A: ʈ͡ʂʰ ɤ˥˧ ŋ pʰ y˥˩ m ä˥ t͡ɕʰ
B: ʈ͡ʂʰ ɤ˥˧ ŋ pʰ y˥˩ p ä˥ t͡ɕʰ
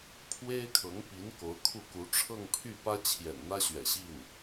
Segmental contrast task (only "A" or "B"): B